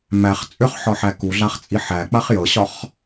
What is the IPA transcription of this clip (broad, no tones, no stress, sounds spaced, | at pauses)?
m æ χ t͡sʼ ʏ χ ħ ɒ ħ æ k u ɮ a χ t͡sʼ i ħ æ k͡p a χ j ɤ ɕ ɒ χ